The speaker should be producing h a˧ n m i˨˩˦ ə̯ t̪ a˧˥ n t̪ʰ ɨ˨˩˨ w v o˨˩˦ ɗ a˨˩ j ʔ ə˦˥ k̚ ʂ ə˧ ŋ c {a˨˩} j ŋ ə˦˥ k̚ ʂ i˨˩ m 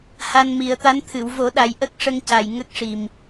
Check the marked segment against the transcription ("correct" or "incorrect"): correct